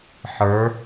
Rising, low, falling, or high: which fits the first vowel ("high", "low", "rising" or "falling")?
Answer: rising